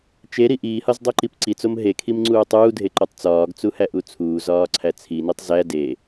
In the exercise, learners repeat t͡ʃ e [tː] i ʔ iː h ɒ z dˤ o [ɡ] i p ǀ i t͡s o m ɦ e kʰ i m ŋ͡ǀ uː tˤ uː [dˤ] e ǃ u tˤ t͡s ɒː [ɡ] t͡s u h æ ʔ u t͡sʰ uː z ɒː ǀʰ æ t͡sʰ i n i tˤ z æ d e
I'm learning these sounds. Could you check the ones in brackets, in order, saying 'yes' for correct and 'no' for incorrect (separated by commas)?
no, no, no, yes